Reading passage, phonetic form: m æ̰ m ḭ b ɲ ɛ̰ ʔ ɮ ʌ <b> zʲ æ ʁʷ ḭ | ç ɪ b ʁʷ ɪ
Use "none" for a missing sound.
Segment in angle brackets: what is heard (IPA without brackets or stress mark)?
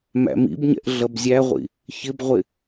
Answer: b